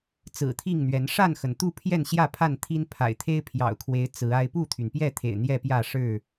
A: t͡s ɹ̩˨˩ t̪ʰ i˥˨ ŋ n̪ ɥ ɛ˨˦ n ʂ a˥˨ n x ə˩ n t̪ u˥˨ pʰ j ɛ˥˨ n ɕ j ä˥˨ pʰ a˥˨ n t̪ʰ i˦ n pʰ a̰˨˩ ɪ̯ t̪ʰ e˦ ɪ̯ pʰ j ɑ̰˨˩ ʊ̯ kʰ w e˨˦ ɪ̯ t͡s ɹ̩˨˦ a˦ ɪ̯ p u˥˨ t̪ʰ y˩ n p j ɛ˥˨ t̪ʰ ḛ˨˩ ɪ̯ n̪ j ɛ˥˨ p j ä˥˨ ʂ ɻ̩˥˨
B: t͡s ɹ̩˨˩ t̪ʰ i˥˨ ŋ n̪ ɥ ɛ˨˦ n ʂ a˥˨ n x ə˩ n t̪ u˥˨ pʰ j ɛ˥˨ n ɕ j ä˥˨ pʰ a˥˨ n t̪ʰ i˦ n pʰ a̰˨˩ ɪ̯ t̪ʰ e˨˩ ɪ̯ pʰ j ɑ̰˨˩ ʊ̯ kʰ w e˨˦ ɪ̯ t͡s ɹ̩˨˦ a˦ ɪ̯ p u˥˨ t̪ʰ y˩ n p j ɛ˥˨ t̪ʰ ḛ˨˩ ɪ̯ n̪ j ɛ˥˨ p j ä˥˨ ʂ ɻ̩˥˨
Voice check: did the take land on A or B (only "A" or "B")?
A